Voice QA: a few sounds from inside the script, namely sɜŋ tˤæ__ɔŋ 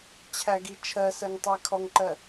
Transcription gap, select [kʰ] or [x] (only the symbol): kʰ